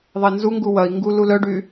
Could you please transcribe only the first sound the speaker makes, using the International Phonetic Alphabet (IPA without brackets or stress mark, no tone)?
ðˤ